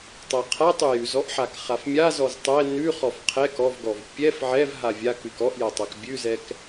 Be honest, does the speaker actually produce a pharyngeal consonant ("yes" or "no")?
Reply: yes